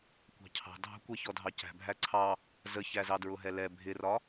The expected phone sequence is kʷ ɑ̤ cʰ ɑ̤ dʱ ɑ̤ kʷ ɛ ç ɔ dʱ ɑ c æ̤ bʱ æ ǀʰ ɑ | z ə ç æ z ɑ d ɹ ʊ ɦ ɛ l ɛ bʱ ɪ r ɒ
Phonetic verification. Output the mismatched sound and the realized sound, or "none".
none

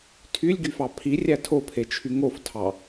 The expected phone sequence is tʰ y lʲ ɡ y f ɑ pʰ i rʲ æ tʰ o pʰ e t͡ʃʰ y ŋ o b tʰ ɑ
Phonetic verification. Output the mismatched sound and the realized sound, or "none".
b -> f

